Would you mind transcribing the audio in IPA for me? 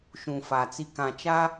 ʃ ũ˨ f a˨ t͡s i˨ k ã˨ t͡ʃ a˦

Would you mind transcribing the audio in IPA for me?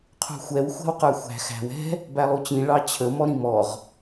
qʰ ṳ xʷ ɛ w xʷ æ̤ w q ə˞ xʷ æ̤ x æ̤ w ɛ̤ | b æ lˠ u t͡ɕ ĩ ɭ ɑ t͡ɕʰ ə m ɔ ɾ ĩ m ɔ ʁ

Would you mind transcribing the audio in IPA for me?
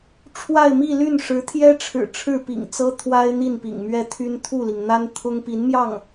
ʈ͡ʂʰ w a˥˧ ɪ̯ m i˥˧ l y˥˩ n ʂ ɻ̩˧˥ t̪ʰ j ɛ˥ ʈ͡ʂʰ ɻ̩˨˩ ʈ͡ʂʰ ɻ̩˥˩ p ḭ˨˩ ŋ t͡s ɤ˥ t̪ʰ w a˥ ɪ̯ n̪ i˥˩ n p ḭ˨˩ ŋ m ɥ ɛ˥˩ t̪ʰ y˥ n t̪ʰ u˥˩ l i˩ ŋ n̪ a˥ n t̪ʰ ʊ˥ ŋ p i˧˥ n m j ɑ˥˩ ŋ

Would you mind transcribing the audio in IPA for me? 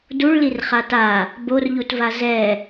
d u ɭ l i r χ a t a | b o r ʎ u t v a z ɛ

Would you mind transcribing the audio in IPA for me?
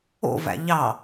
o̰ v æ̰ ʎ ɑ

